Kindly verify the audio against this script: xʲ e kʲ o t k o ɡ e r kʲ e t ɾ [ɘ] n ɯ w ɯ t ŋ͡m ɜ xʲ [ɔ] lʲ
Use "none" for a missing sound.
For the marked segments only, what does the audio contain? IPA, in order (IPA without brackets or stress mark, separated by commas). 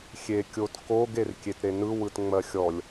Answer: e, ɔ